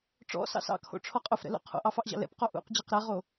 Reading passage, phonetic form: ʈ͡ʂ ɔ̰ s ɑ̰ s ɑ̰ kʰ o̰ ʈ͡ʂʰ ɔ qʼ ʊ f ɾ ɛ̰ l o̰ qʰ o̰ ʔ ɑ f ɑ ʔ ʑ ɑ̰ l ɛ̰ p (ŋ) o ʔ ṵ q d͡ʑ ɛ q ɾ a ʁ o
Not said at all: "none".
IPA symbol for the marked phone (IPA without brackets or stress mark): q